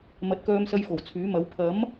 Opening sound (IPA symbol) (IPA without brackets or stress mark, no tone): m